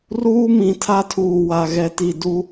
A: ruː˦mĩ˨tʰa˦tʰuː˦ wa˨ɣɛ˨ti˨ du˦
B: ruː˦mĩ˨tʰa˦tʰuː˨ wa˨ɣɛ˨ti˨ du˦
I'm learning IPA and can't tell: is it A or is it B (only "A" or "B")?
B